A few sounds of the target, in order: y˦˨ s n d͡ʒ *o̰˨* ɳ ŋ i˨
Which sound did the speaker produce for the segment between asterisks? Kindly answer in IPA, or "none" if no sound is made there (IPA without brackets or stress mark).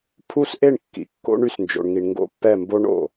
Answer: o̰˨